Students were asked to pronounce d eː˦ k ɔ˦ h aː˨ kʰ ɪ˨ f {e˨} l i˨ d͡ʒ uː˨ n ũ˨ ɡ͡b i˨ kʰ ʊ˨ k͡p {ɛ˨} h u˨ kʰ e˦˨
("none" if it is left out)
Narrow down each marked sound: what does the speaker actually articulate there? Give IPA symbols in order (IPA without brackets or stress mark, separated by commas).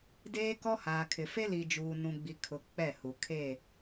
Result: e˦, ɛ˦˨